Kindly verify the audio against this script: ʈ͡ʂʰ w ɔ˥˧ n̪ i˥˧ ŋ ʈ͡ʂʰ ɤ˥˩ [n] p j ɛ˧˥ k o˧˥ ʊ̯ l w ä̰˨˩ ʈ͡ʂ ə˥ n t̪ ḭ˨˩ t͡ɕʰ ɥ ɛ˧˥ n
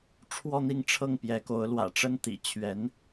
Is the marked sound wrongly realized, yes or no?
yes